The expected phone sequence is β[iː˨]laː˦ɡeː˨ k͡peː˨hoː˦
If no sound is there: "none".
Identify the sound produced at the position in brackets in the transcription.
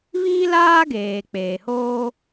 iː˦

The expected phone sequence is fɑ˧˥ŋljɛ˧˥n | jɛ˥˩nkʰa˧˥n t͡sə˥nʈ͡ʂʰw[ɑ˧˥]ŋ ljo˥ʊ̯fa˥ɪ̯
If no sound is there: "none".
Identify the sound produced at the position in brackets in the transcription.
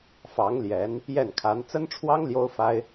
ɑ˥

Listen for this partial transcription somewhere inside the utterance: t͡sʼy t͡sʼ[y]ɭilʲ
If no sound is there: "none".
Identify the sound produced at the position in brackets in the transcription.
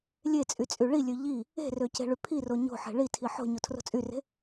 y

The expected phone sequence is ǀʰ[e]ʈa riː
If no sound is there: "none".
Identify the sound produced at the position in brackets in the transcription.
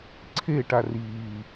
e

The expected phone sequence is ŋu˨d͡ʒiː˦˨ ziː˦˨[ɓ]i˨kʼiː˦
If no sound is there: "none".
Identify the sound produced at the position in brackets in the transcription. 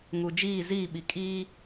ɓ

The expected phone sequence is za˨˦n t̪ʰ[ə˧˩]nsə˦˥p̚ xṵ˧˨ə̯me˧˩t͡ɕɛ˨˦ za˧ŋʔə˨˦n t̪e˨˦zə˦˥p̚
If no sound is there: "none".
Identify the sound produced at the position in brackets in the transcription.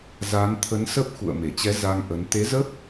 ə˨˦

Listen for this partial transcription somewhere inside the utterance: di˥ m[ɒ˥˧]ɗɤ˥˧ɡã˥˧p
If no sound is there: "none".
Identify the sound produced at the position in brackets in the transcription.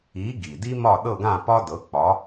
ɒ˥˧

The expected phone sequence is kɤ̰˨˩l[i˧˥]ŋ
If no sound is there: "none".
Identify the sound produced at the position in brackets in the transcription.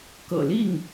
i˥˩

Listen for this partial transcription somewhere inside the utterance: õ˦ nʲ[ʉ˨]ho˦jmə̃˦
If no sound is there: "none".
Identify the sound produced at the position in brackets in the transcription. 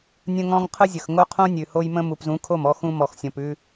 ʉ˨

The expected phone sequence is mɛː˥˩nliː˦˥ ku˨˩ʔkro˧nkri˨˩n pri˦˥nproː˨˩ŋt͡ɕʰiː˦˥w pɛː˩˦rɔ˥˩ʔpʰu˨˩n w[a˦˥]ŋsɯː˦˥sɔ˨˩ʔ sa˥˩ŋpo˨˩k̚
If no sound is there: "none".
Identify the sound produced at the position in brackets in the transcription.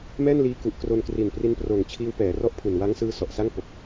a˦˥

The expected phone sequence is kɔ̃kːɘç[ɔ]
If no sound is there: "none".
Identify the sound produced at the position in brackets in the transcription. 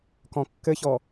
ɔ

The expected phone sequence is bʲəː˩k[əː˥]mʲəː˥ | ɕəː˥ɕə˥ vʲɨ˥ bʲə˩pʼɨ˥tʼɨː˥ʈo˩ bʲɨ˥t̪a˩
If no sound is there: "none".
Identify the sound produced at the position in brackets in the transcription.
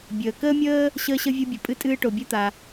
əː˥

